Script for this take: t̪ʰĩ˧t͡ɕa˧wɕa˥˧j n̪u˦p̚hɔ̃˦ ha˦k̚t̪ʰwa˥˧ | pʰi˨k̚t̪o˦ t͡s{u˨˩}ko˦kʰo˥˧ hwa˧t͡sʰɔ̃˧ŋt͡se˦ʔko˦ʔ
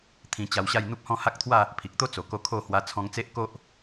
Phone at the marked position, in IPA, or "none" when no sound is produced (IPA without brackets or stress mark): o˨˩